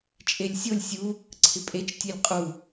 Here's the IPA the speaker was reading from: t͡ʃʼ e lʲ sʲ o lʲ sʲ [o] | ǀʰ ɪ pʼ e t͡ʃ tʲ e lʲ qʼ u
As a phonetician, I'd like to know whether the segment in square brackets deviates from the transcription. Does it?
yes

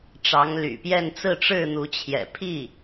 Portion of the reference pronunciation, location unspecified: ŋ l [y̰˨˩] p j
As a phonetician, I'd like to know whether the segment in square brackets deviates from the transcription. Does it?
no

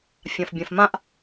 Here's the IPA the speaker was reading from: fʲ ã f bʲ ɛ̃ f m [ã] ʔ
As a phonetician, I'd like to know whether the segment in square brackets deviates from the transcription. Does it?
no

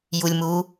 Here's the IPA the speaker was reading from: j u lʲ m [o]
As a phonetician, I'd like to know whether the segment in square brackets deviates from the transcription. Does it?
yes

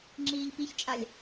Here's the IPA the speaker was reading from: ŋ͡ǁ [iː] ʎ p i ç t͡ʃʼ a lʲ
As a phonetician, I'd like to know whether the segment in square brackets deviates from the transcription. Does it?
no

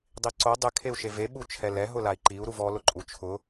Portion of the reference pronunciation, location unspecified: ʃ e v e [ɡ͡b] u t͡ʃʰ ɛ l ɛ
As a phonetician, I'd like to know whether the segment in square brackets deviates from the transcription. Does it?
yes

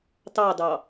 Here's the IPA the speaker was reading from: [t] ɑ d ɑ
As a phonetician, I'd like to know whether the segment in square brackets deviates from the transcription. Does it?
no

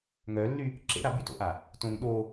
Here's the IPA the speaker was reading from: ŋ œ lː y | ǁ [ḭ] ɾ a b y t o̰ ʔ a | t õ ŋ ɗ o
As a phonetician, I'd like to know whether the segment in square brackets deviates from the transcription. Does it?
yes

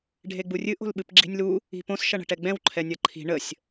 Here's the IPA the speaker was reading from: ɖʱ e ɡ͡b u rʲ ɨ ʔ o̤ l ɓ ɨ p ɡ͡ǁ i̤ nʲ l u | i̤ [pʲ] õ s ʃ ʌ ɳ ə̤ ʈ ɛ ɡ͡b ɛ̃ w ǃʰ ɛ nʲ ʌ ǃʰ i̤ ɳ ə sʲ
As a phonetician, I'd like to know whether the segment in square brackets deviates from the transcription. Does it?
yes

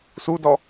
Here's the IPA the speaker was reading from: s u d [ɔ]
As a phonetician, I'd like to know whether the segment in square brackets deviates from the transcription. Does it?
no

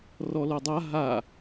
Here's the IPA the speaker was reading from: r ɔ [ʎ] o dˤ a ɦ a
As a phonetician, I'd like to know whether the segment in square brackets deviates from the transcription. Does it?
yes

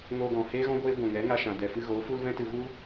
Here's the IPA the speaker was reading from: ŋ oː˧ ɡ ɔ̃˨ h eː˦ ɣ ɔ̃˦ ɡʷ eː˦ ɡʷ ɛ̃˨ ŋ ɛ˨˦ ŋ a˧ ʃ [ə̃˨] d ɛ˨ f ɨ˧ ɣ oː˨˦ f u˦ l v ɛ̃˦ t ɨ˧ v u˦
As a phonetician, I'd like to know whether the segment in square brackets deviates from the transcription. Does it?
yes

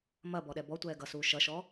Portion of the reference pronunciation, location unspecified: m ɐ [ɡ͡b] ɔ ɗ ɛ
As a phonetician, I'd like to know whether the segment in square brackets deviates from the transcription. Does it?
yes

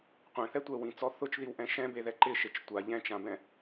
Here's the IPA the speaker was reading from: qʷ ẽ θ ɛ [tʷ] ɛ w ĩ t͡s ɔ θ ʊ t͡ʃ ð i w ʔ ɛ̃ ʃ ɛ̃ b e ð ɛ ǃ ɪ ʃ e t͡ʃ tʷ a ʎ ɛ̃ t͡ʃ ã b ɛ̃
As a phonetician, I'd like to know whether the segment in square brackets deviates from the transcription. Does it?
no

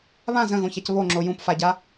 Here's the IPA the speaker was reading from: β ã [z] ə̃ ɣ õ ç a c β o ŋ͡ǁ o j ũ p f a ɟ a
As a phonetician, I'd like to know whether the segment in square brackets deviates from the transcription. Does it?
no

